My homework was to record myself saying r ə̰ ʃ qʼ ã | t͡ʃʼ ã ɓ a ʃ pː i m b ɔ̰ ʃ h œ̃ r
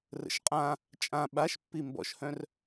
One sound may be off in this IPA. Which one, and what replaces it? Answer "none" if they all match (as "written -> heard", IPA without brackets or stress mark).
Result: none